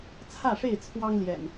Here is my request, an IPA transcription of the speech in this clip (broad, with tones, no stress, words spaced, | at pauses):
t͡sʰä˥˨ʂe˥˨ɪ̯ t͡sʰwɑ˦ŋljɛ̰˨˩n